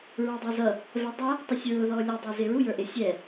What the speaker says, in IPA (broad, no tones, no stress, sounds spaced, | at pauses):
ɹ ɑ dˤ ɑ z ʌ | v ɛ dˤ ʌ | tˤ ə sʲ ɹ ʊ ð ɔ lʲ ə dˤ ɛ z ɪ ɹ u j ə˞ ʔ ɪ sʲ ɛ